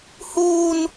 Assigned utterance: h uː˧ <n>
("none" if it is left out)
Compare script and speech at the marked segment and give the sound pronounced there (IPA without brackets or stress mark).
n